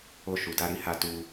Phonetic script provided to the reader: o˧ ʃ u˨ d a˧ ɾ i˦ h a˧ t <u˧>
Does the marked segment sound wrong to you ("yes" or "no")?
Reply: no